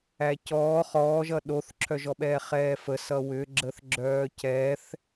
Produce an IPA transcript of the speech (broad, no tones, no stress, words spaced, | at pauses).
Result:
æcɔː χɔːʒʌ ɗoθǁʰœʒɔɓɛː χɛːfə sʌwʏɡ͡ǁəθɡ͡ǁœː cɛθ